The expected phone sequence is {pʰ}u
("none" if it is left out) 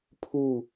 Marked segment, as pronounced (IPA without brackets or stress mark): pʰ